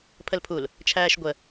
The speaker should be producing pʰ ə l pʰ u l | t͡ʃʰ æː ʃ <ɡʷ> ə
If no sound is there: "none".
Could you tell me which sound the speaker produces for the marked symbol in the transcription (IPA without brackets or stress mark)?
ɡʷ